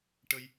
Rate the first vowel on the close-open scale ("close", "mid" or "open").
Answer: mid